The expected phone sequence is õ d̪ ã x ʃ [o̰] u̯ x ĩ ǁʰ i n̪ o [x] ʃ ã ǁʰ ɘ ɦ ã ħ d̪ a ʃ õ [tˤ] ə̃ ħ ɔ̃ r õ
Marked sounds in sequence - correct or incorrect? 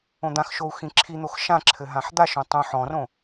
incorrect, correct, correct

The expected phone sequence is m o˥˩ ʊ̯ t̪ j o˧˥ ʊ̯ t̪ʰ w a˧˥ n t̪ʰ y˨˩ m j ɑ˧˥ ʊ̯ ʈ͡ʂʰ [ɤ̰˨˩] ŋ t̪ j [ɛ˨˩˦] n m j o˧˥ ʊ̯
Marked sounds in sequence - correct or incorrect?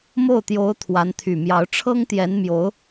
incorrect, incorrect

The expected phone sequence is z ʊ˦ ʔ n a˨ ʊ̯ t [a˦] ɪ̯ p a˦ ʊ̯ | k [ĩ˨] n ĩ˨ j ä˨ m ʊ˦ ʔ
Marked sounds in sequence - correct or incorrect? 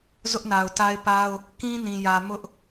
correct, incorrect

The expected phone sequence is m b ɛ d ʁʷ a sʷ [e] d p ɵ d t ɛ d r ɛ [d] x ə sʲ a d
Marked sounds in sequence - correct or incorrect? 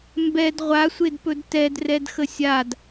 correct, correct

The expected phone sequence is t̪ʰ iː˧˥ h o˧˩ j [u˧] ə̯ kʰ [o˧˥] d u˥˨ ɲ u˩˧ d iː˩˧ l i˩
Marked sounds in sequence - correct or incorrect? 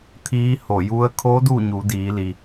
correct, correct

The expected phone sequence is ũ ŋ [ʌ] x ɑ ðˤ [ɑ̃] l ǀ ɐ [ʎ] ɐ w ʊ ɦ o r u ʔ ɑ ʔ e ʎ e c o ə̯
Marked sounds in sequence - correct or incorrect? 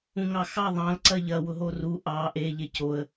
incorrect, correct, correct

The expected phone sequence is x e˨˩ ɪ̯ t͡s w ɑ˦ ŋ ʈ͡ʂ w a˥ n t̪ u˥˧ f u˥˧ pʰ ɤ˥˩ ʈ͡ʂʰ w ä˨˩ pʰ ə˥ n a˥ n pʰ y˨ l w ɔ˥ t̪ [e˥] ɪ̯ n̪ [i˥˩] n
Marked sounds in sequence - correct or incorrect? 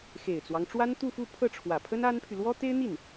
correct, correct

